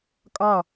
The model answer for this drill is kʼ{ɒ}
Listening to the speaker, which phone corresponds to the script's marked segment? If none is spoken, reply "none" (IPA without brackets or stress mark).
ɒ